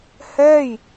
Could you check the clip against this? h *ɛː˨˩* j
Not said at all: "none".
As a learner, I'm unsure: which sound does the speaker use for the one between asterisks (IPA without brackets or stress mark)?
ɛː˥˩